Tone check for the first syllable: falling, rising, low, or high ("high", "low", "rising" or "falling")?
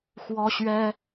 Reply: high